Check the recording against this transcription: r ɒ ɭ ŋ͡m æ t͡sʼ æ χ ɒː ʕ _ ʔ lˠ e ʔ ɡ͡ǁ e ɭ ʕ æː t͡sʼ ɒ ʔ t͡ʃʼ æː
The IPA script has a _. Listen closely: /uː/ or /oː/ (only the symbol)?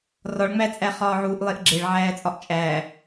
uː